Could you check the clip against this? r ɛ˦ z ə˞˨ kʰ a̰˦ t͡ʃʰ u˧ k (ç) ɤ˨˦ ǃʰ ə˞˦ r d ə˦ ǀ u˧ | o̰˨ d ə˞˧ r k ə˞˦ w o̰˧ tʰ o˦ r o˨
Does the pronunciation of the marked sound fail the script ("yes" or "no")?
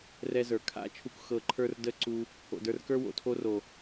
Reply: yes